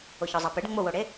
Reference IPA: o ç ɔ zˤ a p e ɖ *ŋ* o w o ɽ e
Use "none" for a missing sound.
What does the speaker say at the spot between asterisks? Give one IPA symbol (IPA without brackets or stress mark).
ŋ͡m